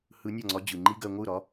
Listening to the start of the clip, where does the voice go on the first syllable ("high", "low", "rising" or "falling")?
rising